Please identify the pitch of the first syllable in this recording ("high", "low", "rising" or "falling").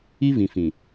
high